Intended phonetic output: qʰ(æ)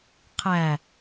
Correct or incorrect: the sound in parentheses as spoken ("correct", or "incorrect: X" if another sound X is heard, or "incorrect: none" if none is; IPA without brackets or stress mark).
correct